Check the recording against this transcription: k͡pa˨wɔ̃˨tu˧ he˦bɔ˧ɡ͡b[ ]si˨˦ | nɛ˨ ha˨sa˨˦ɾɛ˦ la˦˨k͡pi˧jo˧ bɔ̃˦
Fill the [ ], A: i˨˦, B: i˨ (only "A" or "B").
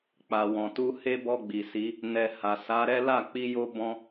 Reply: B